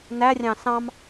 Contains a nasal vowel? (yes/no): yes